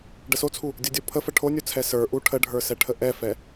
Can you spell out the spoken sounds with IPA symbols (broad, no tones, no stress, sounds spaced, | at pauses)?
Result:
ɖ ə s o t͡sʰ u | dʲ o dʲ o pʰ ə f ə ʈʰ o nʲ u t͡sʰ ɛ s ə˞ ʔ u ʈʰ ə ɖʱ ə˞ s ɛ ʈʰ ə ʔ ɛ f ɛ